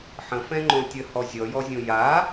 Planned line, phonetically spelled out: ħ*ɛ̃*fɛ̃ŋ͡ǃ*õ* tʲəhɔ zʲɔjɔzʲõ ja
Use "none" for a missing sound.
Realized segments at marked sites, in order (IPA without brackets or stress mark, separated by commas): ə̃, õ